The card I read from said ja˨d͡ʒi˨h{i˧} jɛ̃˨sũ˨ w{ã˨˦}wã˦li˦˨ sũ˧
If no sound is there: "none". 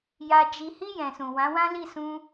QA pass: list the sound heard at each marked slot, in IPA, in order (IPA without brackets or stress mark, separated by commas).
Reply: i˧, ã˨˦